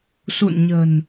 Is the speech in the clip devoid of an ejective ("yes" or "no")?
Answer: yes